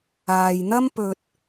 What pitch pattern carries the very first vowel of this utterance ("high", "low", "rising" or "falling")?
low